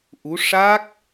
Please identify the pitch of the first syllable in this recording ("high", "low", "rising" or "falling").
rising